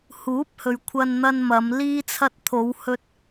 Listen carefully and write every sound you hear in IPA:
huː˨˥p̚hɵ˨ɥ kʷʰɐ˧nn̪ɐ˧nmɐ˨˧m liː˧t͡sʰɐ˧t̚t̪ʰo˨˧whɵ˧t̚

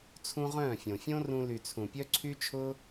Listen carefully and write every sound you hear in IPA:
t͡sʰũ˦ʁœ̃ː˦˨fʲõ˨ fʲõ˦rũ˧ly˨ t͡sʰũ˨pʲœ˦ǀʰy˦t͡ʃʰʊː˦

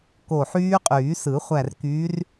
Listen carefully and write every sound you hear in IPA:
ko˧˩ħyː˦˥qʼyː˨˩˦sɯ˨˩˦ χʷæ˧˩rkyː˨˦r

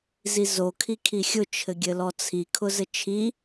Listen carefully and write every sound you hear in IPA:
zizo kʰikʰixʲʊ t͡ʃʰɘɡʲɘlɔt͡sʰi kʰʊzɘt͡ʃʰi

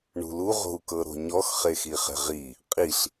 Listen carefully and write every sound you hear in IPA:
ɳṳlu ʁo̤u̯kɤɾo̤ɲɔx χexiχɛ̤ʁi | qʼiɬ

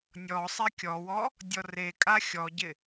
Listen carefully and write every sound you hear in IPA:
nʲɔ sˤɛkʲɔwɔ | dʲɔrekʼa xʲɔɟɪ

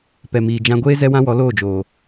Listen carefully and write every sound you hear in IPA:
pɛ˨miː˨d͡ʒã˧ɡʷeː˦ zɛ˦wã˦wɔ˨˦ loː˦˨d͡ʒoː˨

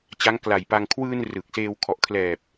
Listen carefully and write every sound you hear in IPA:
t͡ɕa˦˥ŋkla˨˩jpa˧ŋ kʰwɯː˧n rɯ˨˩k̚seː˧w kʰɔ˨˩ʔkʰlɛː˨˩p̚

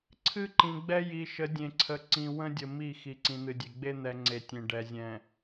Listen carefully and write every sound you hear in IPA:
ǀʰɨ˦ǃĩ˨ɡ͡bɛ˦ ji˨ʃə˨˦ dʲẽ˨ǀʰə˨ ǀĩ˨ wə̃˦dʲə˨ mi˦˨ xi˨ǀĩ˨n̪ɨ˨dʲe˨ ɡ͡be˦n̪ɛ˨ ŋ͡ǀe˨tʲẽ˨ ɖɛ˨zʲɛ̃˨

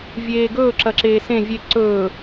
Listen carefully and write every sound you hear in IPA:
vʲeːɡɵː ǁɐǁeːsẽ vʲe ǀɵː

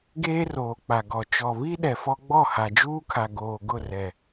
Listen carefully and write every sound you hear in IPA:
ɡeː˦roː˨ k͡pa˨ɡɔ˨ t͡ʃɔ˨βi˦ ɗɛ˨fɔ˦ ɡ͡bɔ˦˨ha˨d͡ʒuː˦kʰa˨ ɡoː˨ ɡʊ˦˨rɛ˨

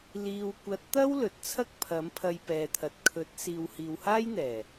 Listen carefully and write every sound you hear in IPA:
liː˨wkʷɐ˨˥t̚t̪ɐ˥w lɵ˨t̚t͡sʰɐ˥k̚ pʰɐ˨˥mpʰɐ˧jpɛː˨t̪ʰɐ˨t̚ kʰɵ˨˥t̚ siː˨whiː˨whaː˥jn̪ɛː˨˩

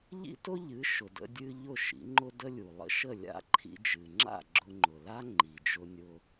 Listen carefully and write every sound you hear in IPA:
ʎḭ˥tʊ˥ʎɨ˩˥ ʃʊ˩də̰˧dʲɨ˧ ʎʊ˥˩ʃḭ˩˥ŋ͡ǃʊ˥ də˥lʲu˩ lˠə̰˥ʃə˥˩lʲa̰˥ ǃʰḭ˧d͡ʒɨ˩ŋ͡ǁa̰˥˩ ɡ͡ǁʊ˧ŋ͡ǃʊ˩la˥ ŋ͡ǃi˩d͡ʒʊ˧ nʲʊ˧

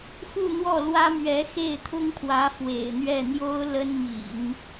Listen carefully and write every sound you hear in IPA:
xu˥˧n̪wɔ˥˩lwä˥mɥɛ˧˥ xe˥˩ɪ̯t̪ʰʊ˥ŋpʰwä˧˥ fwḛ˨˩ɪ̯n̪ɥɛ˥˩n̪jo˥ʊ̯ lə˥nmḭ˨˩˦n

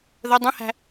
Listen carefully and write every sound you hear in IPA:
ðə dˤə̃hæ̤

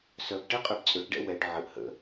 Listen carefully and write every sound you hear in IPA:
sœbʈɛqʼøb t͡sʼøʈɖɛ̰ wɛɖ ʕəʔ hə̰

